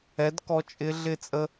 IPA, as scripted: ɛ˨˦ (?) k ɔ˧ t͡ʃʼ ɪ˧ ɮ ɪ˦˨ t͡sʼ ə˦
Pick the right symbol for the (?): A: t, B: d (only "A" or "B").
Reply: B